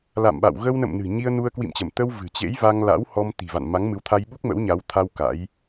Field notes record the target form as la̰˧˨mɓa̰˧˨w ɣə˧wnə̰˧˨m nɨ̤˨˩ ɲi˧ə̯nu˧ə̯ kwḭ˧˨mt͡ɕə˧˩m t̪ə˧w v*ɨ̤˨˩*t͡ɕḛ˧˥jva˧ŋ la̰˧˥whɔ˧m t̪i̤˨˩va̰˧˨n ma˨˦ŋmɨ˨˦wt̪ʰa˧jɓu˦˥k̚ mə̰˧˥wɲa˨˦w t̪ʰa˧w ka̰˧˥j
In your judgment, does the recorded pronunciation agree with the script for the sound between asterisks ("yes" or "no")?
yes